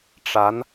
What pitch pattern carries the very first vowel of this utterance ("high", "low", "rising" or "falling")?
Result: rising